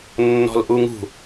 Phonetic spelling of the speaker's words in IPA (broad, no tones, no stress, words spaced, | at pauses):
nːɔ̤lʔuŋṳ